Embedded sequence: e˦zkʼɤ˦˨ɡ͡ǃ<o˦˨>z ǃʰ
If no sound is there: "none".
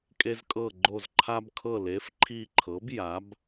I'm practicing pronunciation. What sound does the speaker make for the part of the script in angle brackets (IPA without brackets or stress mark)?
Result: o˦˨